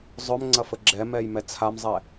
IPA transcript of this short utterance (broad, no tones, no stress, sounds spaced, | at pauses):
zˤ œ m ŋ͡ǀ ɐ f ə ɡ͡ǁ ɛ m ɛ j m ɛ t͡sʰ a m zˤ ɛ